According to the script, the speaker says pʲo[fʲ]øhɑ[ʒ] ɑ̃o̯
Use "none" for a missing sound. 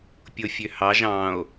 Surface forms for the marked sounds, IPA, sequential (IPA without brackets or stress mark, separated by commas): fʲ, ʒ